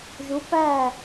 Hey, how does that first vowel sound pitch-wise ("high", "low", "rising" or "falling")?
rising